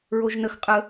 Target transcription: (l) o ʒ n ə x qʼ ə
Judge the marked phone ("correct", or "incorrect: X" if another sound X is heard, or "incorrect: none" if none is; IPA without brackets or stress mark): incorrect: ɹ